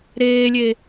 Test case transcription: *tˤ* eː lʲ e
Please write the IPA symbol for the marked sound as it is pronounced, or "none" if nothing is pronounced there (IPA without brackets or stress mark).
ɾ